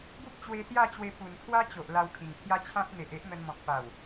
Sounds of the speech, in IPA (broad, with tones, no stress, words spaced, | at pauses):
ɡu˦p̚ t͡ɕwe˧sja˥˧t͡ɕwe˧ pu˨˩n kʰwa˦t͡ɕo˨ʔ la˧wkʰĩ˨˩ŋpʰja˦ t͡ɕʰã˦t̚ n̪e˨ʔe˦ʔ n̪ə˧nmɔ̃˨k̚ pa˨˩w